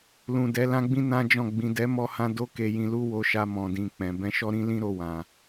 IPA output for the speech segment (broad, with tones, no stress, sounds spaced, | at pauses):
l ũ˨ d ɛ˨˦ l ã˦ ɡ͡b ĩ˦ n ã˦ d͡ʒ ɔ̃˦˨ ɡ͡b ĩ˨ d ɛ˨˦ m ɔ˧ h ã˧ d o˦ k e˧ j ĩ˧ l u˦ w o˧ ʃ a˧ m ɔ̃˨ d ĩ˨ k͡p ɛ̃˨ b ɛ̃˧ ʃ ɔ˦ ɾ ĩ˦ l ĩ˦ ɾ o˧ w ã˨